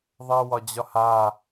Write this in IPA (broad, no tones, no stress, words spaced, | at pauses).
ðˤɜwɒd͡ʑɒha